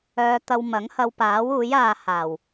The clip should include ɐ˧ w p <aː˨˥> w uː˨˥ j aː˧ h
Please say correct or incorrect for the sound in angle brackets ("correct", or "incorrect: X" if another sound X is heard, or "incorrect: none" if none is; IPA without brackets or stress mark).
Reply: correct